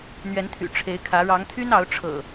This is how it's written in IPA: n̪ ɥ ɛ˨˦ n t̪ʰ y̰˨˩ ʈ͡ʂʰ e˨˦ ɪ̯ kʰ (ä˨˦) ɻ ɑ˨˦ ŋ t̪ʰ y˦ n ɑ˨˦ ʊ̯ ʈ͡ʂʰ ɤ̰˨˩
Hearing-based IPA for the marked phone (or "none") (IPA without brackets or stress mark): ä˨˦